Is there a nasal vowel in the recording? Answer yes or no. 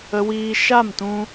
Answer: yes